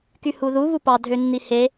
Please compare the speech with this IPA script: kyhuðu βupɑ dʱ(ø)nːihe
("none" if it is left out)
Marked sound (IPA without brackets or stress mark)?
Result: ø